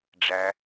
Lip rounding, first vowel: unrounded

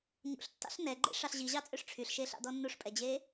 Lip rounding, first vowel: rounded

